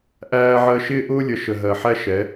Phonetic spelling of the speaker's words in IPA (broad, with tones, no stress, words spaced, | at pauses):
ʔæː˦ʕɜ˦ ʃɪː˦ʔʊː˦lʲə˨ ʃə˨ɦɜ˨ħæ˦ ʃɛ˨˦